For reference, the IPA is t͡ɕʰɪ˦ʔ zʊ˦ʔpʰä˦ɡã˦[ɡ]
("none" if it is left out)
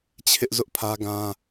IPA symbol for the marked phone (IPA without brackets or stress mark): none